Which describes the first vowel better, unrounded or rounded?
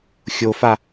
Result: rounded